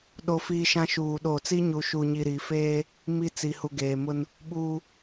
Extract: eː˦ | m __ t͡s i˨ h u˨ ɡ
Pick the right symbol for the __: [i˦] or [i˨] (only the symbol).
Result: i˦